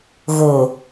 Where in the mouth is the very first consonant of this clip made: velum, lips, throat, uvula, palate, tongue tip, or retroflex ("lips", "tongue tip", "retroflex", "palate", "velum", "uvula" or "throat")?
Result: velum